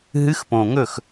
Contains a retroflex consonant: no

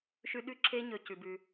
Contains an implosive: yes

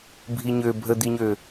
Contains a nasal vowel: no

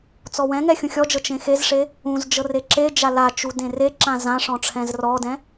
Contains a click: yes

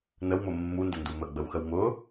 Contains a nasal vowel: no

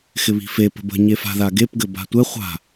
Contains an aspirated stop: no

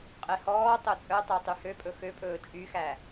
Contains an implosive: no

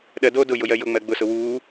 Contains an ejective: no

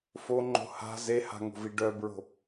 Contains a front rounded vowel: yes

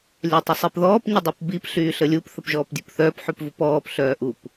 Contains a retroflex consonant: no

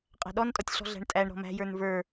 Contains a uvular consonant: yes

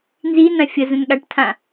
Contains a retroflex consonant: yes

